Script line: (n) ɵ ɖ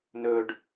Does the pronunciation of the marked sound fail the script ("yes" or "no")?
no